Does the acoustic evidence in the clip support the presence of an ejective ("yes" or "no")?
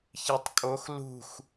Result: yes